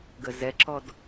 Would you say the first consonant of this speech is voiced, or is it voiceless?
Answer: voiced